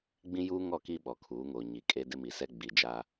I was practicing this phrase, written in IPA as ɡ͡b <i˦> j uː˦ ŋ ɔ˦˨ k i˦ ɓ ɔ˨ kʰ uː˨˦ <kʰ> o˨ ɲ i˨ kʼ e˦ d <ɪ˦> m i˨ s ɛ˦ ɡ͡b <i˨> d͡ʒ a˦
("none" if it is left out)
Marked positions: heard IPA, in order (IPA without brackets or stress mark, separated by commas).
ĩ˦, ŋ, ɪ˦, i˨